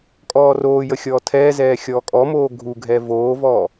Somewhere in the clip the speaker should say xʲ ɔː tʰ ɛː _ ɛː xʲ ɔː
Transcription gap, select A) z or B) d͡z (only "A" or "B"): A